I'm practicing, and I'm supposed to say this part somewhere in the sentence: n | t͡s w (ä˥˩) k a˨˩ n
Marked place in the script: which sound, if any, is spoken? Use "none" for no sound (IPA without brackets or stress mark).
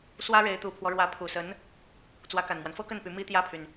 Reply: ä˧˥